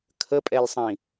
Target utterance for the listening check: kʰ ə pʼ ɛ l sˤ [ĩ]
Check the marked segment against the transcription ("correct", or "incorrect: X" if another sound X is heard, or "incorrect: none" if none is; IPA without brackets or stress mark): correct